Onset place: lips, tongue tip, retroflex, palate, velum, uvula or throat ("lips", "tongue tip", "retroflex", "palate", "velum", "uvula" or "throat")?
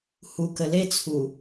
throat